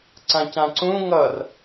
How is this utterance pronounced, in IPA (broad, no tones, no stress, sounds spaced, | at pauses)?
ǀ ã c ã ǀ ũ ŋ ʌ r